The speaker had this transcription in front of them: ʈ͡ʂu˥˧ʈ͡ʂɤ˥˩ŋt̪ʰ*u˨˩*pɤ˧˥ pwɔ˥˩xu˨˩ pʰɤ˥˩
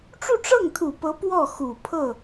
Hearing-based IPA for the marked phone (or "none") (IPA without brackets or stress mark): u˨˩